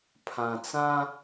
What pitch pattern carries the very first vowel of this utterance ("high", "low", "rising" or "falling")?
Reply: low